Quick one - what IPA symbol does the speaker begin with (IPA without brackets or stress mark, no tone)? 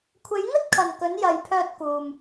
kʷʰ